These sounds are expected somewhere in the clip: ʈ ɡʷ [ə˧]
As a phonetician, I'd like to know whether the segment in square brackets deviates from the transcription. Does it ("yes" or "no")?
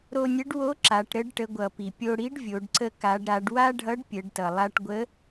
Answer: yes